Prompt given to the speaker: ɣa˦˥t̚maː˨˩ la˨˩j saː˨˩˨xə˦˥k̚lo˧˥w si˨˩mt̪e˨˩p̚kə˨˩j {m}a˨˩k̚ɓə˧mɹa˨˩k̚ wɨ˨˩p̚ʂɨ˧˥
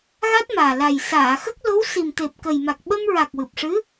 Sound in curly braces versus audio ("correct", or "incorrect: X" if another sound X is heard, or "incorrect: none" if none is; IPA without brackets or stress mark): correct